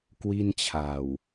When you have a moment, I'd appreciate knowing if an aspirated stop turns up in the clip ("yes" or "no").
yes